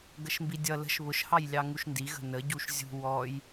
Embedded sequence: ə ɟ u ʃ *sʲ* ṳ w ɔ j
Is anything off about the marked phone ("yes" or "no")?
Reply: yes